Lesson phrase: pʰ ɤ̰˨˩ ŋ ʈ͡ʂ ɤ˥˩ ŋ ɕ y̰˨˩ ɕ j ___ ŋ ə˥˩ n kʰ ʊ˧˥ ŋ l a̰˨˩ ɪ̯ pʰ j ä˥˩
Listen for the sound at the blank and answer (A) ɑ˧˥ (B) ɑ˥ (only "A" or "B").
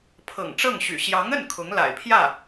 A